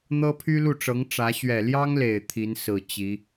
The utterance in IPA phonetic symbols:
n̪ ɤ˥ pʰ y˥ l u˥˩ ʈ͡ʂ ɤ˧˥ ŋ ʈ͡ʂ ä˧˥ ɕ ɥ ɛ˨˩ l j ɑ˥ ŋ l e˨˩ ɪ̯ t̪ʰ i˧˥ n s ɹ̩˨˩ t͡ɕ i˧˥

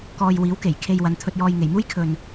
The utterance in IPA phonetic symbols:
k ɔː˧ j w iː˨˥ w k e˨˩ j kʰ e˧ j w ɐ˨˧ n t̪ʰ ɵ˧ t̚ j ɔː˧ j ŋ e˨˩ j m uː˥ j kʰ ɵ˨ n

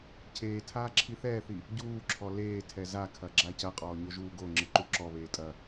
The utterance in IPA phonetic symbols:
cʰ eː tʰ aː ǁʰ i θ ɛː θ i | ɟ uː ǁʰ ɔ l eː tʰ ɛ z a kʰ ɐ ɡ͡ǁ a c ɐ qʼ ɔː ɲ o ʒ uː ɡ o ŋ͡ǁ ɨ ǃ u ǁ ɔ β eː tʼ ɐ

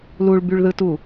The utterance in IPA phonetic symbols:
l u ɭ b y ɭ ð ɯ t u

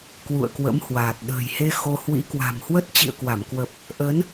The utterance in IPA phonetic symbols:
k w ṵ˧˨ ə̯ k w ə̰˧˥ m h w aː˨˩ t̚ ɗ ə̤ː˨˩ j h e˧ x o˧ h w ḭ˧˥ k w a̤˨˩ m h w ə˦˥ t̚ t͡ɕ ḭ˧˨ ə̯ k w a˧˩ m k w ə˨˩ p̚ | ʔ əː˨˦ n

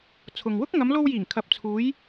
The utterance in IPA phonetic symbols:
t͡sʰ ʊ˨ ŋ w ʊ˥ k̚ ŋ ɐ˨˧ m l o˧ w j iː˨˩ ŋ kʰ ɐ˨ p̚ t͡sʰ uː˨˧ j

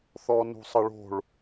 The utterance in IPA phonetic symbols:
θ ɔ n ṳ sˤ ɐ ɭ o̤ ɭ

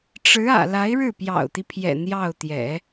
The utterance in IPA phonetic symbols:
ʈ͡ʂ ɻ̩˧˥ ä̰˨˩ l a˧˥ ɪ̯ ɻ ɻ̩˥˩ p j ɑ̰˨˩ ʊ̯ t̪ i˦ pʰ j ɛ̰˨˩ n̪ j ɑ˥˩ ʊ̯ t̪ j ɛ̰˨˩˦

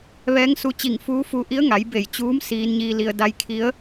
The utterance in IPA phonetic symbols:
ʋ ɛː˧˥ ŋ s u˧ t͡ɕ i˧˩ ŋ f uː˧˥ f u˧ ʔ i˧˥ ə̯ ŋ a˩˧ j b e˧˩ j t͡ɕ uː˧˥ m s iː˧ n ɲ iː˧ l i˧ ə̯ d a˧ j kʰ i˧˥ ə̯

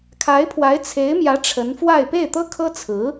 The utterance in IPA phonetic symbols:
kʰ a˧˥ ɪ̯ pʰ w a˧˥ ɪ̯ t͡sʰ e˧˥ ɪ̯ m j ä˧˥ ʈ͡ʂʰ ə˧˥ n f w a˥˧ ɪ̯ p e˥˩ ɪ̯ t̪ ɤ˥ kʰ ɤ˥ t͡sʰ ɹ̩˧˥

